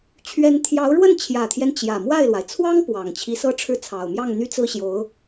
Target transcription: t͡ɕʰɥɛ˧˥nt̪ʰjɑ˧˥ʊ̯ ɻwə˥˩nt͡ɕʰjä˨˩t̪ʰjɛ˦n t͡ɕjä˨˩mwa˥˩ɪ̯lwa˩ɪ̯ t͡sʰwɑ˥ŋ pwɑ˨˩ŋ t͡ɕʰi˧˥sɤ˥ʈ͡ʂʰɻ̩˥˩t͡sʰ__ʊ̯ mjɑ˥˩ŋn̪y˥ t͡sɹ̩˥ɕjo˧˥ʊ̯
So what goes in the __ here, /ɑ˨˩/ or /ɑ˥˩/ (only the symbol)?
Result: ɑ˨˩